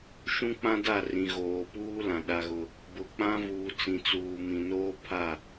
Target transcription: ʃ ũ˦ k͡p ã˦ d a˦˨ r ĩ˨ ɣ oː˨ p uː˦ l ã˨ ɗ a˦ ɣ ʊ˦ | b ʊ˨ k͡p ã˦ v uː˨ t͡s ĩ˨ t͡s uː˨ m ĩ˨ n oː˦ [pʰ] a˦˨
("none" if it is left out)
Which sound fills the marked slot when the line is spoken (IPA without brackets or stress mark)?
pʰ